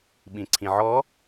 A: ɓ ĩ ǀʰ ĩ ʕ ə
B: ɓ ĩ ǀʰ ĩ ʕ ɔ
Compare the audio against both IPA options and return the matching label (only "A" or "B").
B